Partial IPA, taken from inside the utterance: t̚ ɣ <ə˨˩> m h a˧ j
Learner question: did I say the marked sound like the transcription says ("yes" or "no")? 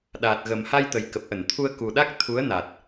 yes